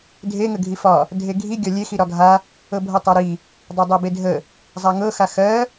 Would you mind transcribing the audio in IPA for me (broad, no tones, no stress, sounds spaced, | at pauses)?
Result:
dʱ e ŋ ə ɡʱ i f ɒ | dʱ e ɡʱ i ɡʲ ɒ lʲ e x i ɾ ɒ ɡʱ a | ɤ bʱ ɤ tˤ a ɾ i | dˤ a dˤ ɜ b e dʱ ə | zˤ a ŋ ɤ x a x ɜ